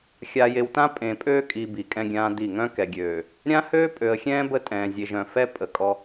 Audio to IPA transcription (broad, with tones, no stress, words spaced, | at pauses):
xʲa˨je˨wtã˦ pʼẽ˨pʼøː˦kʼi˨ bi˨kʼɛ̃˦ɡʲãː˦di˦˨ ŋœ̃˦kɛ˨ɡʲøː˨ | ɾʲã˦ høː˦pʼø˨ə̯xʲɛ̃ː˦ bə˦tʼɛ̃ː˨zʲe˨ʒœ̃˨ fɛ˦ pʼə˨kʼɔ˦